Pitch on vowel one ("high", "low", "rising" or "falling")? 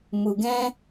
low